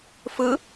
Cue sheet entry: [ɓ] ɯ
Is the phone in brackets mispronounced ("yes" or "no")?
yes